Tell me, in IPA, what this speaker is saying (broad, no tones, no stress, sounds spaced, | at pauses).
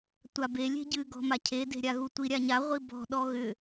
tʷ a b e lʲ e̤ ɟ ɨ ɡ ɔ̤ m a cʰ e d e̤ ɾʲ a ɣ u tʷ i ɾʲ a ɲ a ʁʷ i b ɔ̤ ɗ ɔ ɣ ʏ